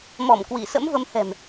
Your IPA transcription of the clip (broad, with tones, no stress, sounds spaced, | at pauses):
m ɔ˧˩ m k w i˧˩ s ə̰˧˥ m v ə˨˦ m h ɛ̤˨˩ m